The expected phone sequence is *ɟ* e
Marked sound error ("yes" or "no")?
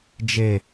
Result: yes